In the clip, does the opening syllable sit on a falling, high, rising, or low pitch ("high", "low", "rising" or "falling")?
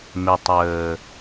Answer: low